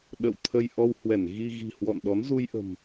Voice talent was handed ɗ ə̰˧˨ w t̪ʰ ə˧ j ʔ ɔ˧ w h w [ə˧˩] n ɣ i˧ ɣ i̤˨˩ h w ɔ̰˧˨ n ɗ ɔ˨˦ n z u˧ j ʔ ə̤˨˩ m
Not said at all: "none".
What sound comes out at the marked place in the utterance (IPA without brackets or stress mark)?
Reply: ɛ˧˩